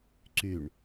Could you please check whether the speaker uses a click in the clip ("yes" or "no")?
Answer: yes